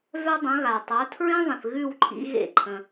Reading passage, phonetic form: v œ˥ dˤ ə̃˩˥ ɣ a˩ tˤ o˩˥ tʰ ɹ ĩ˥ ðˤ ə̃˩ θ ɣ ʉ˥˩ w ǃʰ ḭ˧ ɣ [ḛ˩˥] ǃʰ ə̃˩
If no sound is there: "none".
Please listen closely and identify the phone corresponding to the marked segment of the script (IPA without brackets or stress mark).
ḛ˥˩